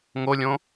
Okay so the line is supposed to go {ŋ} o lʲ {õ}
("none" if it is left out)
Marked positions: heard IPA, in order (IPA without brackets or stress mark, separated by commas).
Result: ŋ, õ